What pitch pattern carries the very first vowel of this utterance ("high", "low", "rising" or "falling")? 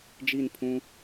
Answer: falling